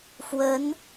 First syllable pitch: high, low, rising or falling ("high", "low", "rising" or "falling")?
rising